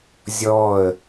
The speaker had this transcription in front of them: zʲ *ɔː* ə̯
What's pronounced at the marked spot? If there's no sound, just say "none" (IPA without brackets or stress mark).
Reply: ɔː